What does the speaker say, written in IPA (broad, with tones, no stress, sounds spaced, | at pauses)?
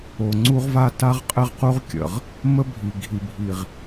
o˨ ŋ͡ǀ u˦ ʁ v a˦ t a˦ ʁ qʼ ɘ˦ ʁ q u˦ ʁ kʲ ə̰˨ ʁ | m ə˦ bʱ i˨ ɡʱ i˨ bʱ i˨ ʁ